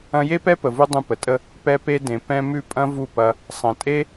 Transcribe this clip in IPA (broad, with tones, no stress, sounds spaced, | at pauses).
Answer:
ɐ̃˧ j e˦ p ɛ˦ p ə˨ v u˦ dˤ ũ˧ p ə˨ tʼ ə˦ | p ɛ˧ p e˧ d ẽ˨ p ɛ̃˧ m ʉ˦˨ pʼ ɐ̃˦ v u˦˨ p ɐ˧ | sˤ ɐ̃˨ tʼ e˦